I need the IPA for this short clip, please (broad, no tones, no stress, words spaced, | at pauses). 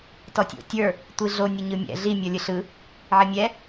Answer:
tɔtʲo̰tʲə˞ | tʷiɮo nʲəɲɯmʲɛ̰ ɮi mʲɔlʲɯɬɯ | ʕɪmʲɛ